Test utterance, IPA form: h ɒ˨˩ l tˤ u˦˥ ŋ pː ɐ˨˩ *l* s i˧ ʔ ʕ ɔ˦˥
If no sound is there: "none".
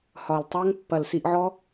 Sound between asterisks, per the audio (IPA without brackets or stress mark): l